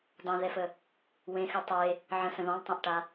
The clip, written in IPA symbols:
dˤẽðɛfə | wẽxʉ tˤe | ʕə̃sə̃ ðɔ̃lˠtˤẽʔʈa

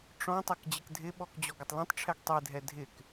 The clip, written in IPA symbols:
ʈ͡ʂɔ̃ tˤɛkd͡ʑɪkdʱɪɓɔk d͡ʑɔɡɪtˤlẽtˤʈ͡ʂʰɛɡ tˤedʱɛ dʱɪk

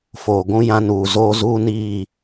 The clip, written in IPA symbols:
foː˨ɡʷũ˦ jã˦nuː˨ zoː˦ zuː˦ niː˦˨

